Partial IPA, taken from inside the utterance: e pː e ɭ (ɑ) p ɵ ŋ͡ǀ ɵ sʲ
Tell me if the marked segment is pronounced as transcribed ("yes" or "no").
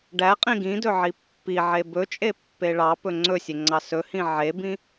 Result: yes